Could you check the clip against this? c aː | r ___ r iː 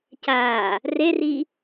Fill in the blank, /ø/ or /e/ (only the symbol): e